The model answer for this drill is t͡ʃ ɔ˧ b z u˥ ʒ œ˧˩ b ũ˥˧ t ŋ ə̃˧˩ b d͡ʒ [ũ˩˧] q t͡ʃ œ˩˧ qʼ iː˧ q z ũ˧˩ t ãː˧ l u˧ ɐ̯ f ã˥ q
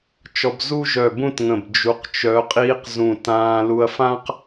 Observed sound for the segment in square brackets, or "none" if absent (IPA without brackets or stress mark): u˩˧